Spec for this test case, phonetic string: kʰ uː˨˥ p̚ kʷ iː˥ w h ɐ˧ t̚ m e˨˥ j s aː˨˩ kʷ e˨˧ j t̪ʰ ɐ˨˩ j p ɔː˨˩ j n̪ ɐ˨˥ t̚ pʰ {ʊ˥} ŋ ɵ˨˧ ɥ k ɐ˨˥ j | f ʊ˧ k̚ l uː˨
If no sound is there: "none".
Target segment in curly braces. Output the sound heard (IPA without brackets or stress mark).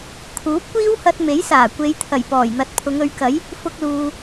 ʊ˨˧